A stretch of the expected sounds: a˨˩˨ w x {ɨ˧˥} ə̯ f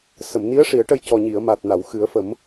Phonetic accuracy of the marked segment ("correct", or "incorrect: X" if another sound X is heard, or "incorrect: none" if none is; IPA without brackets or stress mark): incorrect: ɨ˨˩˦